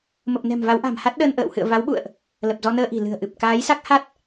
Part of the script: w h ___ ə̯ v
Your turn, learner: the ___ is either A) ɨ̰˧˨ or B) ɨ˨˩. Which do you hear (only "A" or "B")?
A